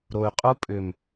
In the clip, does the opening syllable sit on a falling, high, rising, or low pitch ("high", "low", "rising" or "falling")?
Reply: low